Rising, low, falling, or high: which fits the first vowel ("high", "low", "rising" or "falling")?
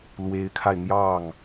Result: rising